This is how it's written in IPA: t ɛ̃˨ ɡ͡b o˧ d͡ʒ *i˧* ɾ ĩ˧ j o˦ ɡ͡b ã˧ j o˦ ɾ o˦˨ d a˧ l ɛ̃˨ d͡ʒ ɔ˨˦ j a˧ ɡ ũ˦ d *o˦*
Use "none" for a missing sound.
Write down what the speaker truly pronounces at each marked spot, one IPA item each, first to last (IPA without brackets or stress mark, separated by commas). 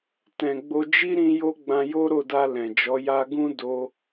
i˦, o˦